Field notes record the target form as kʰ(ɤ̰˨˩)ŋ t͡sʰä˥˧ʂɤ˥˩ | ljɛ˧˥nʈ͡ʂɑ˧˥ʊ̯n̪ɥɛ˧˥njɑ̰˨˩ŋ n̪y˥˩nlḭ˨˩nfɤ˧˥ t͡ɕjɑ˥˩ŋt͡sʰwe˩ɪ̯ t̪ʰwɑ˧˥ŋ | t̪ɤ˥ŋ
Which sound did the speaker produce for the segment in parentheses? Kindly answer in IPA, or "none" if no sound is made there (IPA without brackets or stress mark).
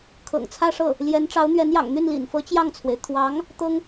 ɤ̰˨˩